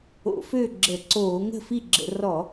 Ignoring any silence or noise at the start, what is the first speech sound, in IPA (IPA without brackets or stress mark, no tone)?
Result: o̰